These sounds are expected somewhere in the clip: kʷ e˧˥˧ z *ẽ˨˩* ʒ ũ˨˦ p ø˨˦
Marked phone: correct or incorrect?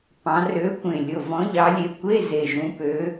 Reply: incorrect